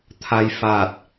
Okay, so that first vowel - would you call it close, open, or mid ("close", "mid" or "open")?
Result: open